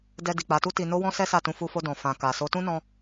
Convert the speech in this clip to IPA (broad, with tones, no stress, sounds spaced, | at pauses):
d ɛ˧ d i˨ k͡p a˨˦ t u˦ t i˧ n o˦ w ɔ̃˦ s ɛ˦ s a˦˨ t ũ˧ f u˧ f o˧ d ɔ̃˨ f ã˨ k a˨ s o˨˦ t ũ˦ n ɔ̃˧